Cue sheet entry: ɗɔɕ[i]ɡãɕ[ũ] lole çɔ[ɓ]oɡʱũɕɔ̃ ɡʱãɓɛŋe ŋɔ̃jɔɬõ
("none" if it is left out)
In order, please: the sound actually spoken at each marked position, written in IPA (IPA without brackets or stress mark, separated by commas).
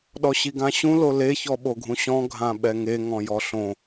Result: i, ũ, ɓ